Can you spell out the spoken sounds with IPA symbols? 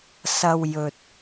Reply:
s ɐ˧ w j ɵ˨ t̚

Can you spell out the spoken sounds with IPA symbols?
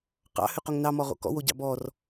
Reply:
q ɑ̰ h ʉ q o ŋ n ɑ m ɔ ʁ o̰ k ɔ̰ w o ɟ ɑ̰ b ɔ r

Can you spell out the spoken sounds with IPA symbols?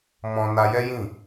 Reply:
m ɔ̃˧ n a˧ j ɛ˦ j ĩ˦˨

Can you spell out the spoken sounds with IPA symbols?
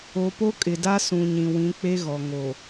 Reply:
o˨ p o˦ kʼ ɪ˨ d a˦ s ũ˨ ɲ ĩ˨ w ĩ˨˦ k͡p e˦ ɣ ɔ˨ ŋ o˨

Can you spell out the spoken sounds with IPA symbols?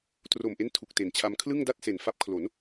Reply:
t r o˨˩ m ʔ e˦˥ n tʰ u˨˩ k̚ t e˨˩ n t͡ɕʰ a˧ m kʰ l ɯ˥˩ ŋ d a˥˩ t̚ s e˨˩ n f a˦˥ p̚ kʰ l o˩˦ n

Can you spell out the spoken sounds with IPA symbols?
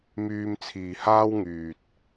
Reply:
m yː˧ m t͡sʰ iː˨ h aː˥ w ŋ yː˨ t̚

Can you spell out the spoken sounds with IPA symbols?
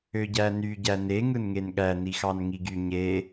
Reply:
ø ɟ æ n y ɟ æ n e ŋ ɯ n ŋ e n ɠ æ n i x ɑ n ŋ i ɡ y ɲ e

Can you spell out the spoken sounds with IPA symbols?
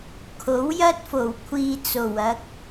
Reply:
kʰ o˨˥ w j ɐ˥ t̚ f o˨˩ w kʷʰ iː˧ t͡s o˨˩ w ɐ˨˥ k̚

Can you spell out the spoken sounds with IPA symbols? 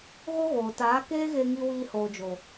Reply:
ɣ o˦ ɣ oː˨ t aː˨˦ k eː˦ ɣ e˧ ŋ i˧ w iː˧ h oː˨ d͡ʒ oː˨

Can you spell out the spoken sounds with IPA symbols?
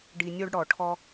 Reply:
ɖ i˧ nʲ o˦ ɖ ɽ ɔ˨ ʈʰ ɔ˦

